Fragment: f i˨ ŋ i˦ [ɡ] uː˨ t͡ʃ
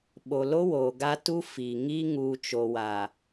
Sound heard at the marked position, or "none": ŋ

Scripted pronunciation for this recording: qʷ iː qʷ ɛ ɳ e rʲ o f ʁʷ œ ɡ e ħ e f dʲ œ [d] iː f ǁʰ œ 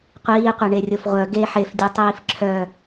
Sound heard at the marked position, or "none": tˤ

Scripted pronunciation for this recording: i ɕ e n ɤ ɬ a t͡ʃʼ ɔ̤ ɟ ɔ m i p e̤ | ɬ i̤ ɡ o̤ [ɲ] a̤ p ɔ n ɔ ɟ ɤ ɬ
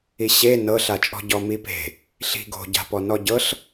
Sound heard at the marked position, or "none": ɟ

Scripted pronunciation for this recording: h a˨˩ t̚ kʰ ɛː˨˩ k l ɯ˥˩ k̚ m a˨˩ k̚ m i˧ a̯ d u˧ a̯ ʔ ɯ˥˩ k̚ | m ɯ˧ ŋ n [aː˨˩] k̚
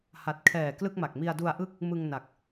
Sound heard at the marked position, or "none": a˨˩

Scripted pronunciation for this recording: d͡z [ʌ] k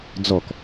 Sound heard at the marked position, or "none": ɔ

